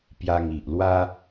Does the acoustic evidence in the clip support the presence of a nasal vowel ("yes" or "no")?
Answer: no